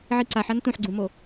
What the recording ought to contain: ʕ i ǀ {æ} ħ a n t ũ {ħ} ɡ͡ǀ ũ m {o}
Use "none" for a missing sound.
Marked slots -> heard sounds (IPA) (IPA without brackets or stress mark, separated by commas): a, ħ, o